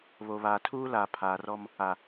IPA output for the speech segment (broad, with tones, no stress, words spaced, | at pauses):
βo˨βaː˨tʰuː˦laː˨ pʰaː˨rɔ˦m | a˨